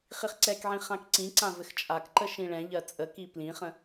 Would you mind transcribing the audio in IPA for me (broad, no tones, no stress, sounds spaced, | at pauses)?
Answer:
χ i χ ǀ ɛ k ʕ ĩ χ ã k ǀ ĩ ǀ ã v ɘ x t͡ʃʼ a k ǃ ə ʃ ĩ ɭ ɛ̃ ʎ ɜ t͡sʼ ə k i p l ĩ χ ə̃